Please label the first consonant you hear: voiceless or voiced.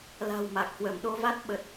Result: voiced